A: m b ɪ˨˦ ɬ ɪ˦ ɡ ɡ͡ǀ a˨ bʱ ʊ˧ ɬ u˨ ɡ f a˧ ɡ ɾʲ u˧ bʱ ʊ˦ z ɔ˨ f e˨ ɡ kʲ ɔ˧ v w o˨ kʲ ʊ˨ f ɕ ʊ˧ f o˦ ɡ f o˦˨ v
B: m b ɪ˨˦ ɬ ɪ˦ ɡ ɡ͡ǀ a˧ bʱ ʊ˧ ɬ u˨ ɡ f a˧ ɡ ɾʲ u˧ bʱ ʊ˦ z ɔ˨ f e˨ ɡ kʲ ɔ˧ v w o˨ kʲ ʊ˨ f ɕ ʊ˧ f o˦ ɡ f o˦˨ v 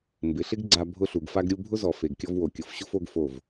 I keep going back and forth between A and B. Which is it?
B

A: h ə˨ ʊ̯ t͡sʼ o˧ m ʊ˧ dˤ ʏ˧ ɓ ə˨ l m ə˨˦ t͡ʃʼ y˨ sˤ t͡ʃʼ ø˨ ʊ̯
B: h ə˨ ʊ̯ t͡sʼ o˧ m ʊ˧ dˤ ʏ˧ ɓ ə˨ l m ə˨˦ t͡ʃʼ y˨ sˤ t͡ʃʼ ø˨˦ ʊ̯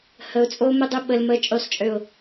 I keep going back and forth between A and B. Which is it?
A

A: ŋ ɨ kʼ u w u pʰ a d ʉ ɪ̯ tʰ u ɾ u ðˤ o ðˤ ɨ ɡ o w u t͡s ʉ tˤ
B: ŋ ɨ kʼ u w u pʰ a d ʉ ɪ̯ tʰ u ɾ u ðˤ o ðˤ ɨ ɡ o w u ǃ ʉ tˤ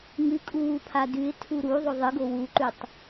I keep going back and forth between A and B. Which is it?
B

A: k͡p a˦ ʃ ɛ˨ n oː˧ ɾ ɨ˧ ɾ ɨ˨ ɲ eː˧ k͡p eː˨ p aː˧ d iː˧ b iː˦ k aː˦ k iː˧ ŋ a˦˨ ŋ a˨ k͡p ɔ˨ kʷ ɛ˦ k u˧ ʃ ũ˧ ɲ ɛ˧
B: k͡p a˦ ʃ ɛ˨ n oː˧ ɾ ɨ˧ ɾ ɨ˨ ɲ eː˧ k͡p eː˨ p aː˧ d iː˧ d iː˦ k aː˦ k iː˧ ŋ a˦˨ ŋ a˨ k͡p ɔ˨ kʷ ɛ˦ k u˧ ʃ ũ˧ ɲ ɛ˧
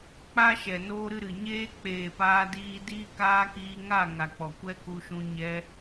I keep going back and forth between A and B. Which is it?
B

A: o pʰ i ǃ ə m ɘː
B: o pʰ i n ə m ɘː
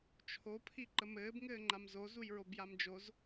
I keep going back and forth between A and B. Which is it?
A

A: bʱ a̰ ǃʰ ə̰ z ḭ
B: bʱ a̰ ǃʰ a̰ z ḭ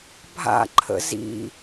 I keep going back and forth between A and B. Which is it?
A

